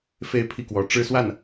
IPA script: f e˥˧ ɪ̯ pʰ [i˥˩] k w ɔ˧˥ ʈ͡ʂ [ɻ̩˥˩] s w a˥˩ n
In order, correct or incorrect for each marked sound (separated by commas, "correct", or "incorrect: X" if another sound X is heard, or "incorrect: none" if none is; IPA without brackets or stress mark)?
correct, incorrect: ɻ̩˥